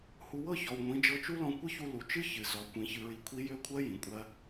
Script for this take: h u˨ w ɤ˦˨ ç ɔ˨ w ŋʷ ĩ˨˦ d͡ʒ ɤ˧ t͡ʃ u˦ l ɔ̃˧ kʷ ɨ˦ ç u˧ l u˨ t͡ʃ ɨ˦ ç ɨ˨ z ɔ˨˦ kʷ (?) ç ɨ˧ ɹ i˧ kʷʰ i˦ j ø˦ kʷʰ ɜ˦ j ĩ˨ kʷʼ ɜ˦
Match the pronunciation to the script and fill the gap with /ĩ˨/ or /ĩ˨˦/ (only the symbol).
ĩ˨˦